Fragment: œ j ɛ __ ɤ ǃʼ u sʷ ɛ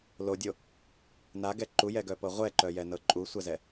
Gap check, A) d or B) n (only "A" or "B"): B